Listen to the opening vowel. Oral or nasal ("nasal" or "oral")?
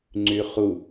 oral